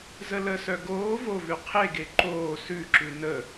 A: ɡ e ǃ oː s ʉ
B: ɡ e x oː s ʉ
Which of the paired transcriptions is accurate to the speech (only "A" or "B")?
A